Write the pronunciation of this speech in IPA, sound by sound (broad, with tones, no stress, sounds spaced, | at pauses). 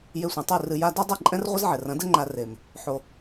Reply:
j e˧ sʷ ĩ˨ tˤ ɨ˦˨ r ɨ˧ j a˧ d u˦ dˤ ɘ˦˨ ǃʼ ɛ̃˦ r ʁʷ ɘ˦ z ʕ ɛ˨ r ɐ̃˨˦ d ɘ˦ ŋ͡ǃ a˧ r e˨ m | ħ o˨